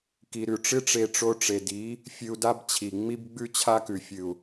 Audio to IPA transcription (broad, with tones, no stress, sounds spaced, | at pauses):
k i˨ ɾ ʉ˨ ʈ͡ʂ ɨ˦ ʈ͡ʂ e˧ ʈ͡ʂ o˧ ʈ͡ʂ e˨ d i˨˦ | fʲ ɨ˧ u̯ d a˦ b t͡ɕʰ i˨ ŋ͡m i˦ b ɡ͡b ʉ˦ t͡ɕʰ a˦ k ʉ˨ fʲ ɨ˨ u̯